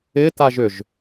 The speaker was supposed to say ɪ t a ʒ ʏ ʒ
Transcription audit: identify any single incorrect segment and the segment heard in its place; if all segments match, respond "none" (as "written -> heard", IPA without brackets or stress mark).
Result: none